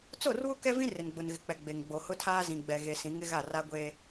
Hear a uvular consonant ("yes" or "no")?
no